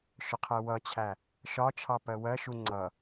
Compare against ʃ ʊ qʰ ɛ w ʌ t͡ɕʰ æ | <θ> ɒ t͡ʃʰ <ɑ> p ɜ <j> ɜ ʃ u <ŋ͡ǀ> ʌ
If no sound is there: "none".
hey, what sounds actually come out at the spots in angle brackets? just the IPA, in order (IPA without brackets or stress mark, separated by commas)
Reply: ʃ, ɑ, w, ŋ͡ǀ